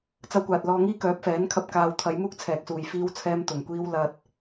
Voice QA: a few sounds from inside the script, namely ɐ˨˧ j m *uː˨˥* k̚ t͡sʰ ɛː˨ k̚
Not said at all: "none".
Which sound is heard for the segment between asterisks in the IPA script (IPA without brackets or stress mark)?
uː˥